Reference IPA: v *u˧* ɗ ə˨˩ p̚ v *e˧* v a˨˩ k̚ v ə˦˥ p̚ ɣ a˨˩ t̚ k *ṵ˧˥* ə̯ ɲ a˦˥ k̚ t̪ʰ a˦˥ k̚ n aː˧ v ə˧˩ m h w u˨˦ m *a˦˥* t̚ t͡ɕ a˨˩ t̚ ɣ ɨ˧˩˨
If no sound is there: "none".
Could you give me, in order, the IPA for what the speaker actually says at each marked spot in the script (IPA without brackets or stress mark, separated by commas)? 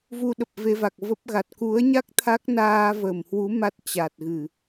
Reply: u˧, e˧, u˨˦, a˦˥